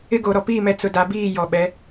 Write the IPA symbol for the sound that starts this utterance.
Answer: ɪ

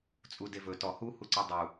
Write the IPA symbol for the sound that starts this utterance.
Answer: t͡sʼ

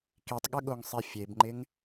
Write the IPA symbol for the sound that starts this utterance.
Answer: k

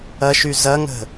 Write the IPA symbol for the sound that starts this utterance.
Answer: ɐ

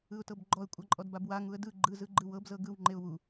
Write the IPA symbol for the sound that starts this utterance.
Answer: ɯ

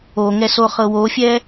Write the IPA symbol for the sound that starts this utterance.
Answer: o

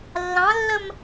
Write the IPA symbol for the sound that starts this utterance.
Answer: lː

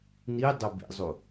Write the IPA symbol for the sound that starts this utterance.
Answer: n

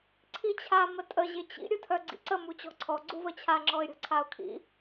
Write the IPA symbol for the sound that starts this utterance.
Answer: ǀʰ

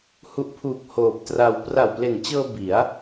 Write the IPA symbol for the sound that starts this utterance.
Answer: h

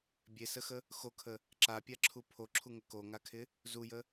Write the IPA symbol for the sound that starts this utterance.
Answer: bʲ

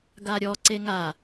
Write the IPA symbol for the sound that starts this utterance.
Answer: ɡ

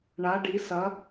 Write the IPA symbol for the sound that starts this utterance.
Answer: ɳ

